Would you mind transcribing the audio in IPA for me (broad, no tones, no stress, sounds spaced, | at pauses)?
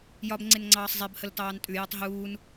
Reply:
j ɒ b ŋ͡ǀ e n ŋ͡ǀ ɑː sˤ zˤ e b h ə l t ɑː n tʼ ʉ j ɒ tˤ ɦ uː n